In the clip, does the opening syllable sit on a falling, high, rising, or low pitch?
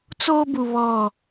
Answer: high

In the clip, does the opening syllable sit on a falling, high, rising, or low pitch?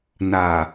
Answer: low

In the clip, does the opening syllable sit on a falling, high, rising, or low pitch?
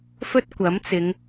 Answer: high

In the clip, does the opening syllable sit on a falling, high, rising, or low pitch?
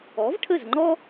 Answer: rising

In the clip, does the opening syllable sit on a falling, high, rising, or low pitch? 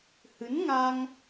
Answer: rising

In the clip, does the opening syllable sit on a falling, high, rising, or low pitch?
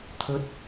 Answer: rising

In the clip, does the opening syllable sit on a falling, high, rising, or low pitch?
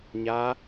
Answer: rising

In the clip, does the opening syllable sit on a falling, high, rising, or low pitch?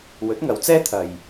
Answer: rising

